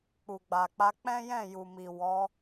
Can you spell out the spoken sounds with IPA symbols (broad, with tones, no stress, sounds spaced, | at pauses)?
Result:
k͡p u˨ ɡ͡b a˨ k͡p a˧ k͡p ɛ̃˦ j ɛ̃˦˨ j u˨ m i˨ w ɔ˨˦